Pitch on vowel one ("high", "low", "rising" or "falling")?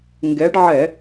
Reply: rising